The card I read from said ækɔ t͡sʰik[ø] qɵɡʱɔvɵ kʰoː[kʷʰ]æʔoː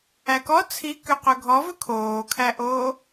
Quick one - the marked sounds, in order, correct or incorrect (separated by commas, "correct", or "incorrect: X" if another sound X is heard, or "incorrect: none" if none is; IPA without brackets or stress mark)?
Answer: correct, incorrect: kʰ